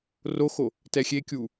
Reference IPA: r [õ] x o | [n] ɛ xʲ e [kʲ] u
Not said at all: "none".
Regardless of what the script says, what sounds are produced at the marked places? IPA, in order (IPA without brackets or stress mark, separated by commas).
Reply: o, t, kʲ